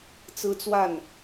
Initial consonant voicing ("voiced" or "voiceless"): voiceless